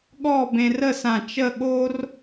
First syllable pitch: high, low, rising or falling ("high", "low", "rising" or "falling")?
falling